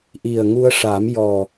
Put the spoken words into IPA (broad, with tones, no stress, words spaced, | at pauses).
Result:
ʔi˨˩ə̯ŋu˧ə̯ʂa˨˩˦m jɔ˨˩